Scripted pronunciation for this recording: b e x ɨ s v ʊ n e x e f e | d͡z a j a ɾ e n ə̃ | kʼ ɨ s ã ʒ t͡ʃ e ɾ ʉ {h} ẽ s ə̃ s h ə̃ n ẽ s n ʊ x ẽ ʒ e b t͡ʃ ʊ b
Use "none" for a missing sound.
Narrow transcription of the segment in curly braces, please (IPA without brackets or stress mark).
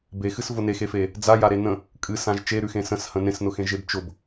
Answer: x